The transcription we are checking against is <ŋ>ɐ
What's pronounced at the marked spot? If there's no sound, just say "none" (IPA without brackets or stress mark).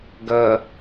ɡ